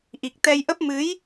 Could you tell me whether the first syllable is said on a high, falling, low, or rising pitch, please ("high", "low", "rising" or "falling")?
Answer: low